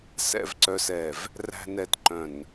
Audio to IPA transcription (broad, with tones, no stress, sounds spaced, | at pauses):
s ɛ̰˨ v ǀ œ˨ s ɛ˨ v | r æ̤˨ n ɛ˨ t ǃ œ̃˨ n